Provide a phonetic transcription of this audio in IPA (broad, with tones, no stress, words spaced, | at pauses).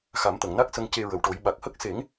xa˨˩˦mt̪ə˨˩˨ŋna˦˥k̚ sə˧ŋ ce˧ɹə˨˩wʈo˨˩˦j ɓa˨˩k̚hə˦˥k̚ se˨˩˦ŋ